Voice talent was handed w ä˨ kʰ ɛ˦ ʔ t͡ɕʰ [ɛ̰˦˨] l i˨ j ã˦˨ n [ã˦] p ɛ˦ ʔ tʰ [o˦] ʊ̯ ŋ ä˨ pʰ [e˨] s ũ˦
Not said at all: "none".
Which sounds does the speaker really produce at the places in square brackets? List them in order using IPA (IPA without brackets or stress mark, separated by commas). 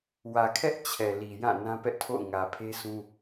ɛ˨, ã˦, o̰˦˨, e˦